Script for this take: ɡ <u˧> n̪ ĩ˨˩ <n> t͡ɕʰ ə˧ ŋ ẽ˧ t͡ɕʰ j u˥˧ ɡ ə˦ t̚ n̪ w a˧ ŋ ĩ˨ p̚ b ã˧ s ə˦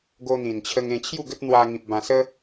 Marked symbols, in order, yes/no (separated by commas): no, yes